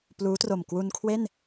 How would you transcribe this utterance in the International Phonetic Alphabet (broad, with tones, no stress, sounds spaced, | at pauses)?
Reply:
p l uː˦˥ t r o˨˩ m k w u˧ n kʰ w e˥˩ n